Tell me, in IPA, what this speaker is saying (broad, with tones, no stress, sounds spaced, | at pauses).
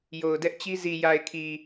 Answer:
j o˨ ʊ̯ d ɛ˦ ʔ t͡ɕ i˦ z i˨ j a˨ ɪ̯ kʰ i˨